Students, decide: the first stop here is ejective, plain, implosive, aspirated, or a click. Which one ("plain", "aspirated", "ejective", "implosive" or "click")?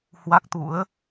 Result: plain